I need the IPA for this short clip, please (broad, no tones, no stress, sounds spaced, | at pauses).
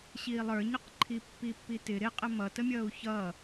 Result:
ɕ iː lˠ ə˞ ɲ ʊ q ǃʰ i pː i pː i t ɪ ɾ ɪ qʼ ə m ʌ t ə mʲ ʌː u̯ ç ʌ